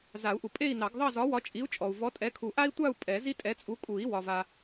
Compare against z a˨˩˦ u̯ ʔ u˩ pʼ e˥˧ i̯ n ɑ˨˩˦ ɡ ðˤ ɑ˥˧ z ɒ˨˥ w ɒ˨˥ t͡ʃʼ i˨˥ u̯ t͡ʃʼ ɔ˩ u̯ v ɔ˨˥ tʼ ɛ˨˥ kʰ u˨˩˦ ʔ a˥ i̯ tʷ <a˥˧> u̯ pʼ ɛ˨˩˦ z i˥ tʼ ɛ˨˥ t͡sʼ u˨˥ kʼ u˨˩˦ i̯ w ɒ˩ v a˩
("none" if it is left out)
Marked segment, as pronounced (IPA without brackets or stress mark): a˥˧